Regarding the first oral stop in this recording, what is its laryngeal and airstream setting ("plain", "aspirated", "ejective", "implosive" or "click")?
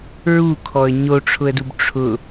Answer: aspirated